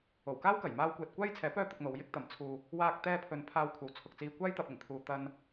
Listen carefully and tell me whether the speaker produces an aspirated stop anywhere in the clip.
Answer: yes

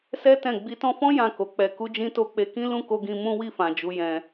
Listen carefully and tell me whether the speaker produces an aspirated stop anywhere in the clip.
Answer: no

